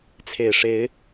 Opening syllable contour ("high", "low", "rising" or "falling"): low